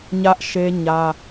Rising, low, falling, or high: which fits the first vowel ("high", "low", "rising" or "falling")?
high